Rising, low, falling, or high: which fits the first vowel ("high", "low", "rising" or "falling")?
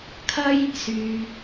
high